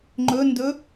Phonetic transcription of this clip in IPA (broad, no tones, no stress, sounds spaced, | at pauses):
ŋ͡ǃ ɵ n d ɵ